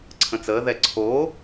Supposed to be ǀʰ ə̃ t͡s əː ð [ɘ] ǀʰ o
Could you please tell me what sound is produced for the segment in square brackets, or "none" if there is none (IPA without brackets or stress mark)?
ɛ